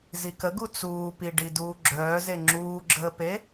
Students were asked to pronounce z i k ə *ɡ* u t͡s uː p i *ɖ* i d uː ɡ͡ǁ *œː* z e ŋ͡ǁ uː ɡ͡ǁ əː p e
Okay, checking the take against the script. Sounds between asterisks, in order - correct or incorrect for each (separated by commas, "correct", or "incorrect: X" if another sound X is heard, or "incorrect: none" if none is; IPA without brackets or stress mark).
correct, correct, correct